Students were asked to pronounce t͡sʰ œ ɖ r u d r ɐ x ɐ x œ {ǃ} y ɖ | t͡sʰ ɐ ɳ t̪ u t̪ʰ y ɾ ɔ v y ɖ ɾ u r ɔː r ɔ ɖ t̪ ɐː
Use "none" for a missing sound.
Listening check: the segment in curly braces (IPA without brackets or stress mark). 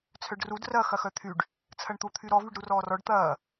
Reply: t̪ʰ